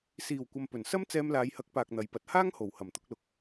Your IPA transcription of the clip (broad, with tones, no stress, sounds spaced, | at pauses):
s iː˨˩ w kʷ ɐ˨ m p ɵ˨˩ n s ɐ˥ m t͡s ɛː˧ m l aː˨˧ j h ɐ˨˥ k̚ p aː˨ k̚ n̪ ɐ˨˥ j p ɐ˨˥ t̚ h aː˥ ŋ h o˨˩ w h ɐ˨˩ m t̪ ʊ˧ k̚ l ʊ˨ k̚